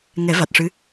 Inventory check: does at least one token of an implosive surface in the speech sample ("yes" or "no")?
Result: no